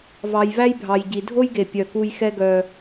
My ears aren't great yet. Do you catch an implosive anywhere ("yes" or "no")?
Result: no